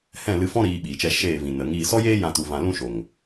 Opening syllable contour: falling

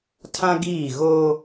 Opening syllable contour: high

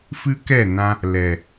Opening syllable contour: high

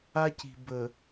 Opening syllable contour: high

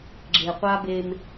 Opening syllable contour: low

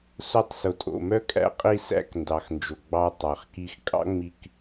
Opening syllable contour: falling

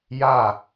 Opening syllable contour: falling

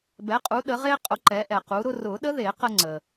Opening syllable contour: rising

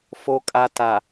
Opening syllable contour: low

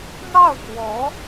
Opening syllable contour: falling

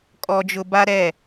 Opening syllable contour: high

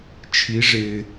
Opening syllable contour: rising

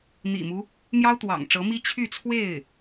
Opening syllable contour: low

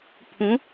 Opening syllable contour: rising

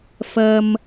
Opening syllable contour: high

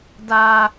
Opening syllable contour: high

